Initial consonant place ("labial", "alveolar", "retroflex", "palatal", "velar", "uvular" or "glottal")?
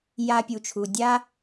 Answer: palatal